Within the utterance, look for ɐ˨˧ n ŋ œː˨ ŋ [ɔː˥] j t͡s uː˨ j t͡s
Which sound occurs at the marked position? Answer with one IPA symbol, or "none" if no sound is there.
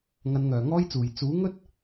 ɔː˥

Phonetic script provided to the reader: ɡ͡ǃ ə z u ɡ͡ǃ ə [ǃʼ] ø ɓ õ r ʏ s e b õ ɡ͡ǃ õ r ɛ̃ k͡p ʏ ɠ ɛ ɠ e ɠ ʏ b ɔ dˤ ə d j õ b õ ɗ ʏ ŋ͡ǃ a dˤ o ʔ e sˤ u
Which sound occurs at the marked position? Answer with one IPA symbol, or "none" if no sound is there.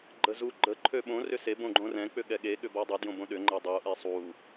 ǃʰ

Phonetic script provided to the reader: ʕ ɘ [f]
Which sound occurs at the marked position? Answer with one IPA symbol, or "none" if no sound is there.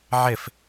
f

